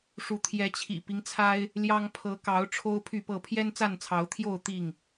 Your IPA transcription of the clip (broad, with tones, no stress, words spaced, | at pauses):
ʂu˨˦ t̪ʰjɛ˨˦t͡ɕʰḭ˨˩pi˦ŋ t͡sʰa˦ɪ̯ | ljɑ˦ŋ pʰɤ˨˦kɑ˨˦ʊ̯ ʈ͡ʂʰo˦ʊ̯pʰy˥˨pɤ˥˨ pʰjɛ˦nt͡sa˥˨nt͡sʰɑ˨˦ʊ̯t̪ʰjo˥˨ʊ̯ t̪i˥˨ŋ